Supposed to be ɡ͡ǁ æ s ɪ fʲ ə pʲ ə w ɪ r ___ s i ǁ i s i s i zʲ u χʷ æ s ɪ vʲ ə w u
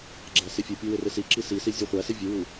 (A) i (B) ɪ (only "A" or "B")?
B